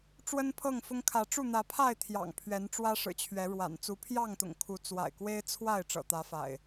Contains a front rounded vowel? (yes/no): no